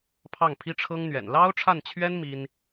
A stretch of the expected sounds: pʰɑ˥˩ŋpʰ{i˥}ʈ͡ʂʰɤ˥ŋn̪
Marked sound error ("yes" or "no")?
no